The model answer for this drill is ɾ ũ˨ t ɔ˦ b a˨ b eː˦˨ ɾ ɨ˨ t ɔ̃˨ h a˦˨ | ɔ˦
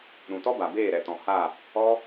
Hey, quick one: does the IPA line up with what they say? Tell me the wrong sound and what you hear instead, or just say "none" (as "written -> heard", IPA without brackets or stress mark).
ɨ˨ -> ɛ˨